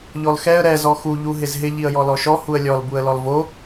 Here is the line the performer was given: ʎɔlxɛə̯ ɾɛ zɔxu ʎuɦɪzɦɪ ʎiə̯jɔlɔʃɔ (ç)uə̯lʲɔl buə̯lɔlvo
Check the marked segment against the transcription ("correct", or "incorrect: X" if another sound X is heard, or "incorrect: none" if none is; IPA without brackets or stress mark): incorrect: h